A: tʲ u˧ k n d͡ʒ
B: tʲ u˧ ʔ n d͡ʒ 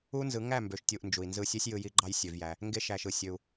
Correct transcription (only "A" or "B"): B